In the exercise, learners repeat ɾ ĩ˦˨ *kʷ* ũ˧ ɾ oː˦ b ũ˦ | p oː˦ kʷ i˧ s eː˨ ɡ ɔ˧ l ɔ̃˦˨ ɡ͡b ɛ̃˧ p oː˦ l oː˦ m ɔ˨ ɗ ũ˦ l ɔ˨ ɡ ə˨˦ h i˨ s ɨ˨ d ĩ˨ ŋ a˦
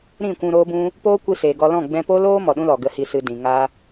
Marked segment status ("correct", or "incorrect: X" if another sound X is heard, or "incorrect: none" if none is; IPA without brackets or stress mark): correct